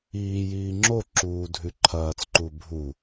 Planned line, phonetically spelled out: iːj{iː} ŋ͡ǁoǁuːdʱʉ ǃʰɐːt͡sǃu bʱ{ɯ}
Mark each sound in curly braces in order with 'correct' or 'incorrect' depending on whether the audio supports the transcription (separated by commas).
correct, incorrect